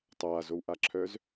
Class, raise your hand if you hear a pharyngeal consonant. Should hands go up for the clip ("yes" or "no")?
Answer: no